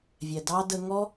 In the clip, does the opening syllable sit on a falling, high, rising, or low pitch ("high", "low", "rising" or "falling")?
low